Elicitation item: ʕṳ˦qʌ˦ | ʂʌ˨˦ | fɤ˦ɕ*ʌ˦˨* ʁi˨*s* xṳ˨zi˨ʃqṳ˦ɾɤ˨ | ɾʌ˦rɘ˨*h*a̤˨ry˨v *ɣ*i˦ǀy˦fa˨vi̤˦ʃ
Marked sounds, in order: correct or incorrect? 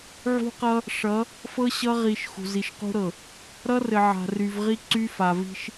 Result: incorrect: ʌ˦, incorrect: ʃ, incorrect: ʕ, incorrect: ʁ

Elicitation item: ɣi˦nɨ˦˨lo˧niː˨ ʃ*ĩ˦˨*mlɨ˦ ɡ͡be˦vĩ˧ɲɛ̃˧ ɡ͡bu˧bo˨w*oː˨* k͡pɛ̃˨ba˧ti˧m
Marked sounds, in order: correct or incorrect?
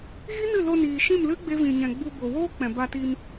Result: correct, incorrect: oː˦

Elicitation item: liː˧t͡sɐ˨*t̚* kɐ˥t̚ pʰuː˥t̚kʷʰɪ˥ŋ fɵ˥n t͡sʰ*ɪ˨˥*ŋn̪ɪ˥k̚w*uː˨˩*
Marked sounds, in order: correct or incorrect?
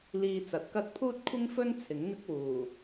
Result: correct, correct, correct

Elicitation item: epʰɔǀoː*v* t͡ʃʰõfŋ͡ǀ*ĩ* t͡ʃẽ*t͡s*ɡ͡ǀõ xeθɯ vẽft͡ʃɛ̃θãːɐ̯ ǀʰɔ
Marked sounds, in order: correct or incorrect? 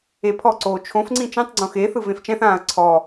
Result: incorrect: none, correct, incorrect: tˤ

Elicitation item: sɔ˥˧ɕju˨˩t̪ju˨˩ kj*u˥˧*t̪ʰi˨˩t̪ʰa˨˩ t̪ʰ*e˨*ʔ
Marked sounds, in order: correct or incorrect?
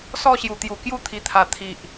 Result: incorrect: u˦, incorrect: i˨

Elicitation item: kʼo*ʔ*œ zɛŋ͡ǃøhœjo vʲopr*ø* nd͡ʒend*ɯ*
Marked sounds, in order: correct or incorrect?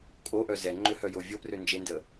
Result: correct, correct, incorrect: ə

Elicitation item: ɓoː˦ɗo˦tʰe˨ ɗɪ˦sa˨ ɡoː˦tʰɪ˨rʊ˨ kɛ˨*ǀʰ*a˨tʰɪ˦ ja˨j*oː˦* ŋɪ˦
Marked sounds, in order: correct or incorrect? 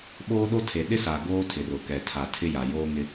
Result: incorrect: tʰ, correct

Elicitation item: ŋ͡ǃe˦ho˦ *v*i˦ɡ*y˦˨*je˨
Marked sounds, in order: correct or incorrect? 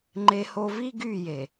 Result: correct, correct

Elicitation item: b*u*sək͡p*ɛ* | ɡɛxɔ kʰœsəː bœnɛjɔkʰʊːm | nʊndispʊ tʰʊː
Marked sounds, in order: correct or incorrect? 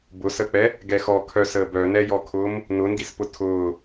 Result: incorrect: ʊ, correct

